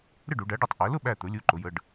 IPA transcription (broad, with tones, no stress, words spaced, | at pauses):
ɾɪ˥˨ɖu˩˧ɖæ˩˥ɖʌ˧˩tˤ ʔæ˩˧lʊ˥˨ɓæ˧˩t̪ʊ˩˧ lʲu˩˧˩ǃʊ˩˧jə˩˧˩ɖ